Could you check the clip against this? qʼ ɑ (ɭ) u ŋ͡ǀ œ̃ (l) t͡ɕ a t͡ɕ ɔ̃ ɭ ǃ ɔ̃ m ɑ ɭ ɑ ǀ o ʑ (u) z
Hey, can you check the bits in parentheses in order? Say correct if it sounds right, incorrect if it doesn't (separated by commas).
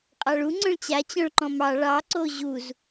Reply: correct, incorrect, correct